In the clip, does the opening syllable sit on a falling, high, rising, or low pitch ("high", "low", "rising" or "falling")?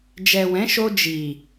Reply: low